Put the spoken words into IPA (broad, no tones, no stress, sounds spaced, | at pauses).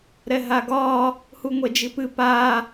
ɾ ɛ ɦ a ɡ ɒ | h u ŋʷ ɛ d͡ʒ i p ɨ p a